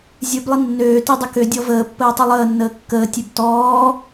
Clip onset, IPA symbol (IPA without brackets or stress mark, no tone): zʲ